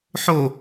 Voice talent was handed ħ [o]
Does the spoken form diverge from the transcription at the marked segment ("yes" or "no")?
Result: no